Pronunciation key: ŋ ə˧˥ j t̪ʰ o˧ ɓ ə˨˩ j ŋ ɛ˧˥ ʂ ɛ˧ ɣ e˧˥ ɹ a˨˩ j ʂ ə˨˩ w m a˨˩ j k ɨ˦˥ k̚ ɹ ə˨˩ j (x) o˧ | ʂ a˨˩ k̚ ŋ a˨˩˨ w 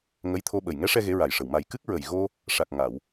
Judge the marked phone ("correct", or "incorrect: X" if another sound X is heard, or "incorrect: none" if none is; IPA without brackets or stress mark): incorrect: ɣ